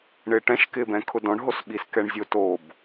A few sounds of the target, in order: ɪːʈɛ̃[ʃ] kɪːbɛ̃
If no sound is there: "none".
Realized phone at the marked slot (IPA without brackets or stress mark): ʃ